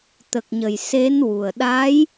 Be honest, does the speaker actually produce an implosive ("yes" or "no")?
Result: yes